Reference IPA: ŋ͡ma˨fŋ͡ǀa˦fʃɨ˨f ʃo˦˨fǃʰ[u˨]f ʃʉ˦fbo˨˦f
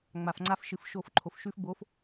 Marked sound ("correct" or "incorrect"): incorrect